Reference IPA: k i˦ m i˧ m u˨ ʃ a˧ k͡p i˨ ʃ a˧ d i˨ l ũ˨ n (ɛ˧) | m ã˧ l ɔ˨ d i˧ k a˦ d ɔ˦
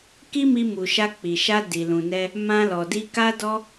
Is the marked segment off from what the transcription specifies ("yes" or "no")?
no